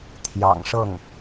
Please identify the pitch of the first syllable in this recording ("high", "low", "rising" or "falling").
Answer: low